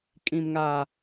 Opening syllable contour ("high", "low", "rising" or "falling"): low